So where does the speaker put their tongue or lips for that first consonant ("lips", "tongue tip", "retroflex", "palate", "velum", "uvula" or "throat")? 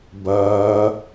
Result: lips